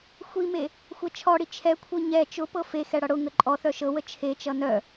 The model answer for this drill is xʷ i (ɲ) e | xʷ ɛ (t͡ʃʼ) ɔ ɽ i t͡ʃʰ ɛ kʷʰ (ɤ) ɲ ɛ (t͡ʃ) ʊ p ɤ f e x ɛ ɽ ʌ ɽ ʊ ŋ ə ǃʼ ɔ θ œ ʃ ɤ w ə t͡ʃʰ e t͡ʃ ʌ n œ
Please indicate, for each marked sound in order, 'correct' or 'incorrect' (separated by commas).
incorrect, incorrect, correct, correct